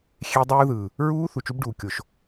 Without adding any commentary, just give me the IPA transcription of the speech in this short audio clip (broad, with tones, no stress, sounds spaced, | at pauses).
xʲ e˦˥ dˤ uː˦˥ ð ɯː˨ | ɹ uː˦˥ θ u˨ t͡ʃ u˦˥ b ɖ uː˨ kʲ o˨ ʃ